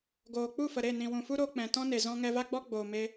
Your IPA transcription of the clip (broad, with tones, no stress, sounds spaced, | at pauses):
ɡ oː˨ k͡p u˦˨ f ə˨ ɾ e˦˨ n ĩ˨ w ũ˨ f u˦ ɾ oː˧ k͡p ɛ̃˨ t ɔ̃˦ n e˨ z ɔ̃˧ ŋ ɛ˧ v a˦ ɡ͡b ɔ˦ ɡ͡b oː˨ m e˧